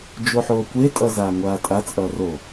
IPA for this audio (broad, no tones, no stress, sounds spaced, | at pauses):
d͡ʒ o ħ oː kʷ e tʼ ʌ z aː ŋʷ aː tʼ a t͡sʼ ʌː r o